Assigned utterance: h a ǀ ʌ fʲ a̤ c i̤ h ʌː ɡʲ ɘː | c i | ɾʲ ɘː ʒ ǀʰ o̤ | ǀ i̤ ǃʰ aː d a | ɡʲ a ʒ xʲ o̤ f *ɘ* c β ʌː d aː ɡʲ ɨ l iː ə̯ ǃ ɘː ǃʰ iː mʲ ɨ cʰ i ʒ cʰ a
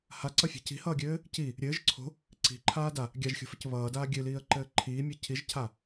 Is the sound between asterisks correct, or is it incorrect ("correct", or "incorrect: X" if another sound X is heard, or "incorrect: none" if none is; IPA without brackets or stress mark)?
correct